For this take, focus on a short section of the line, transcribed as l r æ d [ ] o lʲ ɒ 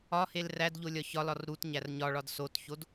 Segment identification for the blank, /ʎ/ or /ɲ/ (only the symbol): ʎ